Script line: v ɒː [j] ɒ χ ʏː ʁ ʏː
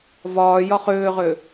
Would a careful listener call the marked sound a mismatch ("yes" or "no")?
no